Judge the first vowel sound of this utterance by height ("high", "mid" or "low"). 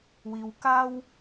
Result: high